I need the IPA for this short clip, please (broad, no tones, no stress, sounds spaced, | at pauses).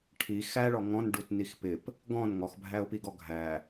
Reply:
ʈʰ i x æ ɭ ɔ ŋ ɔ̃ n ɖ u t n i x p ɪ p | ɡ ɔ̃ n ŋ ɔ x bʱ æ ʊ̯ p i ɡ ɔ ɡʱ æ